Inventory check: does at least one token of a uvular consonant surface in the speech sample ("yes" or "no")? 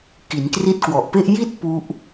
no